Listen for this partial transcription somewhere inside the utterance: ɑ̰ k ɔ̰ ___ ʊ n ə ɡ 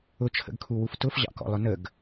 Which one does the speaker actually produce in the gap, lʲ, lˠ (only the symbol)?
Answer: lˠ